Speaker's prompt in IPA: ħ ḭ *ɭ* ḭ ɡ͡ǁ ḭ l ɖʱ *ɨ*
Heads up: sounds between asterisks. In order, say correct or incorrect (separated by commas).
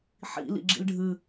incorrect, correct